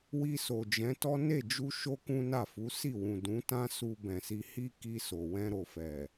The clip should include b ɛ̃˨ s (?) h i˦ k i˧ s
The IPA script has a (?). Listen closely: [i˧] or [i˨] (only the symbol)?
i˧